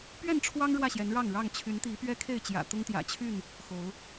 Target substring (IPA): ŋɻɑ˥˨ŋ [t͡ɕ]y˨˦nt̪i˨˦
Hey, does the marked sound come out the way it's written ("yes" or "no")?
no